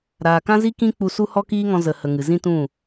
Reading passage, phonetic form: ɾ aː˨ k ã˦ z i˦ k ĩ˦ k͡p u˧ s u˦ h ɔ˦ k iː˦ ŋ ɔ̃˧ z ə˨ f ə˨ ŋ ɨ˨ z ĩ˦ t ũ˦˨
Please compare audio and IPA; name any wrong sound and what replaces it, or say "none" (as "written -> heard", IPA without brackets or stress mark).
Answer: f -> h